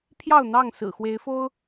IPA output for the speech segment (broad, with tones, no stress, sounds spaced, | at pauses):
pʰ j ɑ˥˨ ʊ̯ n̪ ɑ˥˨ ŋ s ɹ̩˨˩ x w e˨˦ ɪ̯ f o˦ ʊ̯